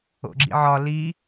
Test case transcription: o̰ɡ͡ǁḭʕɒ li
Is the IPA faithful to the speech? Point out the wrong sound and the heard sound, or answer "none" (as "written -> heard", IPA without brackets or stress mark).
none